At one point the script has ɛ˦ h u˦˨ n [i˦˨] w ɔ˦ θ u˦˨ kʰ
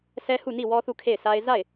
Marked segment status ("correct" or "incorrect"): correct